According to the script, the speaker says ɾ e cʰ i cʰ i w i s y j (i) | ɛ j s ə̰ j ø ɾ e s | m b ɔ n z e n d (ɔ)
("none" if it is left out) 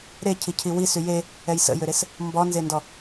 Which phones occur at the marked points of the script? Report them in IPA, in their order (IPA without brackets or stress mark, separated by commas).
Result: e, ɔ